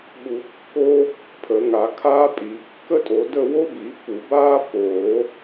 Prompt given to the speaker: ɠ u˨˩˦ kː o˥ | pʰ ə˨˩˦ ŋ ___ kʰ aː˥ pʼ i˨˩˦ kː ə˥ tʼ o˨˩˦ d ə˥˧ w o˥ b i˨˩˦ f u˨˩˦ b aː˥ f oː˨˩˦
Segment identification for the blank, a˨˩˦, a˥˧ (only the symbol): a˨˩˦